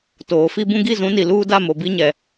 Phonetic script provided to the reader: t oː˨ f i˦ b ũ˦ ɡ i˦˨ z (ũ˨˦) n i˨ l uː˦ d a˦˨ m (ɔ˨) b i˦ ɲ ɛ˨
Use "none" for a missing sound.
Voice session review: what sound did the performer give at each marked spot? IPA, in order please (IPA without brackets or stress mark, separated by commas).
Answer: ũ˨˦, o˨